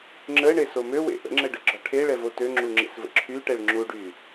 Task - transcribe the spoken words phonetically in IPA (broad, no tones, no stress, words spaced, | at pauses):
ŋ͡ǁəːɳeso møwḛ ʔə̰ŋ͡ǁəɖəɡ͡ǁɒ ʈʰeɭɛvo tøŋ͡ǁuŋ͡ǁḛsvə̰ ǁʰyʈɛɭ ŋ͡ǁuɖy